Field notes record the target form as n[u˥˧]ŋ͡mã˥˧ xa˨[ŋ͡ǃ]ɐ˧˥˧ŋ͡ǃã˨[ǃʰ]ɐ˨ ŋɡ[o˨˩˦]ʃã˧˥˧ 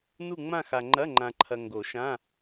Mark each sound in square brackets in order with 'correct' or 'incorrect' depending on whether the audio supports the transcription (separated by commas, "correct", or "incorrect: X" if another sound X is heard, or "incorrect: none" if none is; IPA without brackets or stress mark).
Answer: correct, correct, correct, correct